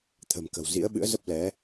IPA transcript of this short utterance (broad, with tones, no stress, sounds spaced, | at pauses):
t̪ʰ ə̤˨˩ m k ə̤˨˩ w z ḭ˧˥ ə̯ ɓ ɨ̰˧˥ ə̯ z ə˦˥ p̚ l ɛ˨˦